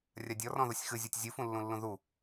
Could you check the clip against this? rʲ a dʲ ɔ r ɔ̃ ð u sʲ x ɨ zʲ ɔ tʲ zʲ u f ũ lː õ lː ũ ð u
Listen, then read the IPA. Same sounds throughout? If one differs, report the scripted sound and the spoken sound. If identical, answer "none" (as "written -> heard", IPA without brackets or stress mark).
õ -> ũ